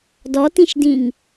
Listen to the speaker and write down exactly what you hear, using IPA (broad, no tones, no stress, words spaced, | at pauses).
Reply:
dɔtĩʃdĩŋ